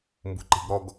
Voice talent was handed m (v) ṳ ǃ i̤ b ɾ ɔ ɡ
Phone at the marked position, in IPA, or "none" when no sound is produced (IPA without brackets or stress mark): b